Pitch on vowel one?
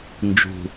low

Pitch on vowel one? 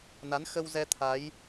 rising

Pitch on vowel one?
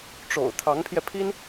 low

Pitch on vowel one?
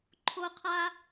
high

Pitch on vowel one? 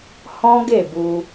high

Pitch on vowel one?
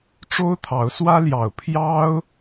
high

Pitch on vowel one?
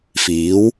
rising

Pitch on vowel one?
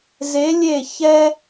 rising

